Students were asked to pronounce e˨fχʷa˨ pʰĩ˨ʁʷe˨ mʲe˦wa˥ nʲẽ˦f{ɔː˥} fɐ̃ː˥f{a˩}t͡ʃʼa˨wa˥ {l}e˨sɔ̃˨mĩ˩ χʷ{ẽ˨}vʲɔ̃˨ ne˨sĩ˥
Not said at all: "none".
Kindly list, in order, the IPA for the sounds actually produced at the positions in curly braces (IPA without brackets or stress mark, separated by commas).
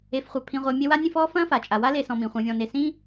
ɔː˥, a˩, l, ẽ˨